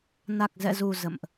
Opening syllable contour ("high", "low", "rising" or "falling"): low